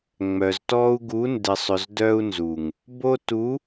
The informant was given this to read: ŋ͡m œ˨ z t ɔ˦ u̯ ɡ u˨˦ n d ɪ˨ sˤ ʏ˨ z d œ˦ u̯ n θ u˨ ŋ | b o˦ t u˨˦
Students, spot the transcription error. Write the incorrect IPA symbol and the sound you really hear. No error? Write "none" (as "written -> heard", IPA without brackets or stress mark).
θ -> z